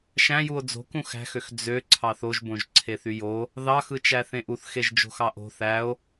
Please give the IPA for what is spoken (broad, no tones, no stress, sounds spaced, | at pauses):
ʃ æ̃ j u o̯ d͡z o̤ k ũ x æ̤ x ø x d͡z ø ǀʰ ɑ θ o ʒ b õ ʒ ǀʰ e θ y j o | ð ɑ x ɯ t͡ʃ æ θ ẽ ʔ u θ x e ʒ d͡ʒ o̤ x ɑ ʔ o̤ θ æ o̯